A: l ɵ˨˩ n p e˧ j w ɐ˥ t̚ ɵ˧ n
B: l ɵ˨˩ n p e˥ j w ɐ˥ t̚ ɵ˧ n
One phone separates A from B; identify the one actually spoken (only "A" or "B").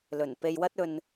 A